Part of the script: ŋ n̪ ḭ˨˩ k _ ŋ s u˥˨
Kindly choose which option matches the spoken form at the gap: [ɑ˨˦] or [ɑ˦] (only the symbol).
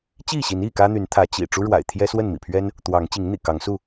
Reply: ɑ˨˦